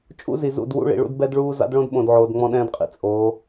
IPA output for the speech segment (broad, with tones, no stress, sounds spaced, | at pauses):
t͡ʃʼ ṵ˦ z i˨ z ṵ˦˨ d w ṵ˦ ɭ ḭ˨ ɭ ṵ˦ d b ɛ˦ d ɭ uː˦ z a̰˦ d ɭ õ˦ d ɓ õ˨ d ʕ oː˨ d ŋ͡m ɔ̃˦ ɗ ɛ̃ː˦ d qʼ ḭ˨ t͡sʼ oː˨˦